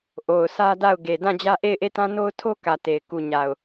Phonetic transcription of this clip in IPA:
ʔo˨ʊ̯sʰä˦da˦˨ʊ̯ ɡe˨ dã˦˨d͡ʑä˦ ʔe˦˨ɪ̯ʔe˦˨tã˦ no˦ʊ̯tʰo˦kä˨ te˨ɪ̯ ku˨ɲa˨ʊ̯

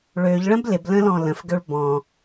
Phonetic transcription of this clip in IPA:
ɭøʎ ɭə̃blɪblə̃ lɔ̃lə̃fɡøɭ bɔ̃

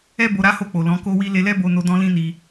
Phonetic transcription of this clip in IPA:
ɛ˦ bo˧ɾa˦ho˦˨k͡po˨ lɔ̃˨˦ko˦wi˦ le˧lɛ˦bo˧no˧ dɔ̃˦lĩ˦ni˧

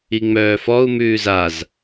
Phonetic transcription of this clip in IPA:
iŋ͡mœːfɔu̯ mʉːzaz

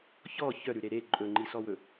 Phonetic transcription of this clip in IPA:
çɔ çœɾʉɾe ɾe ǃʼɵŋ͡ǃisɔwɵ

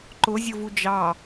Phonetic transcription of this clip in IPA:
ǃʊzʲʊvu d͡ʒɑ

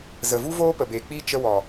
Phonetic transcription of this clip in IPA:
zə˨vu˦voː˦ pə˨beː˨k͡piː˦ t͡ʃə˦ wɔ˨

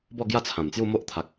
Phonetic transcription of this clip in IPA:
bɔ˥˧ɡja˥˧t͡sʰã˨˩mt͡sju˥˧ mo˦ʔt̪ʰa˨k̚

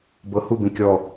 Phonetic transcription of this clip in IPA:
bɤhubĩ kʲɔ

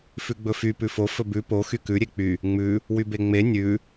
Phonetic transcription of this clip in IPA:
fʉɡ͡bɵfy pʉfo fɵbʉ po xykʉ ɾʲek͡py | ŋ͡mʉ | wybeŋ͡me nʲʉ

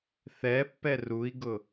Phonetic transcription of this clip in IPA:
θɛpːɛ rui̯ɡʊ

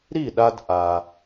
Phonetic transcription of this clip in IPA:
ɾi˥˩ɗa˧d ʔa˩

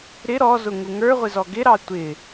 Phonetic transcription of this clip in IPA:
ɾɪ ɾɔzʊ ŋuŋə˞ʁʷɪ zɔɡɪɾɑ tʷɪ

